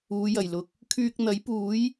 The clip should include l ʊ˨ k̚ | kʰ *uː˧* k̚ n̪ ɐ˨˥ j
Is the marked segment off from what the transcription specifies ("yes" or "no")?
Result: yes